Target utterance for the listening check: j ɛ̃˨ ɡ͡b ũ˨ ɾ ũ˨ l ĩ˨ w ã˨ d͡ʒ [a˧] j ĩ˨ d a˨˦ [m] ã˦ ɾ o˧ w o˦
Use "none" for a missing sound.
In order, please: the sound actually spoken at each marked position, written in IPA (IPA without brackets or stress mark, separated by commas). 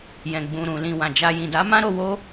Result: a˧, m